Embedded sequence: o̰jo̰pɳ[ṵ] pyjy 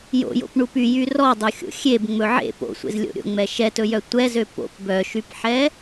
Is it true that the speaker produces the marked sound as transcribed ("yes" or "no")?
no